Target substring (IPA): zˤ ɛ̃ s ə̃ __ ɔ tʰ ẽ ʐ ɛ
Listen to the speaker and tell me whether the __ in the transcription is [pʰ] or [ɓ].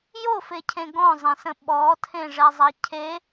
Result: ɓ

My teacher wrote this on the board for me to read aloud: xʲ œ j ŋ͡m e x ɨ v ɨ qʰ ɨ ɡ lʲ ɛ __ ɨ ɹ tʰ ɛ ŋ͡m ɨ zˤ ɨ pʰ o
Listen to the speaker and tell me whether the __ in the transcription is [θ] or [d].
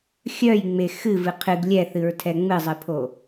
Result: θ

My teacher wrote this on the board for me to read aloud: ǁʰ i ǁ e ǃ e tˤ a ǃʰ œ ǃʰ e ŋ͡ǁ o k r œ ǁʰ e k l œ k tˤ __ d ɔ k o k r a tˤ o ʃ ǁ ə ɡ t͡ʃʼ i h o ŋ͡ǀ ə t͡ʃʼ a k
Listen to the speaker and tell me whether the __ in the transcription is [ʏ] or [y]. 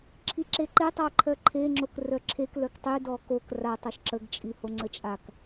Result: y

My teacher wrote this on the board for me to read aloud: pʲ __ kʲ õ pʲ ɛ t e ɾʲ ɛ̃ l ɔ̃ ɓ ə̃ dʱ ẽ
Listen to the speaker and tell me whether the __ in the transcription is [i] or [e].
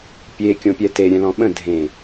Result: e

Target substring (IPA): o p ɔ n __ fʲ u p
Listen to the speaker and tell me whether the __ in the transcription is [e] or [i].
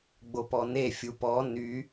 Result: e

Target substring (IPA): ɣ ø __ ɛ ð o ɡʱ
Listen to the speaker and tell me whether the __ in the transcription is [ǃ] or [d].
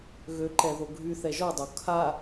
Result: ǃ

